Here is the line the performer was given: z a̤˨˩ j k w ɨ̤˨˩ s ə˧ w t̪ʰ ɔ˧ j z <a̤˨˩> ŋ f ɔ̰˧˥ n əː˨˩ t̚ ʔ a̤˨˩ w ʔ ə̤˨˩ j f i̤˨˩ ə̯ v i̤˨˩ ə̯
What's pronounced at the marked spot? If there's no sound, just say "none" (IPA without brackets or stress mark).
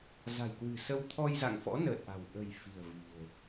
a̰˧˨